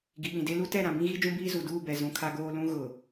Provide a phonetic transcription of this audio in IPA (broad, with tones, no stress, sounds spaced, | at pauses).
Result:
ɡ i˨ ɓ ĩ˨ d e˦ l u˦ t ɛ˦˨ ɾ ã˨ b ĩ˦ ɣ i˦ d͡ʒ ũ˦ b iː˦ z u˨ d uː˦˨ b ɛ˨ z ũ˨ kʰ a˦ ɡ oː˦ l ũ˦ ɣ ʊ˨